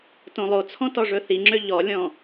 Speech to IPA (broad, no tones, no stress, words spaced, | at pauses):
tõlˠot͡sʰɔ̃ tɔʐɵθiŋ͡ǁø ʎɔlʲɔ̃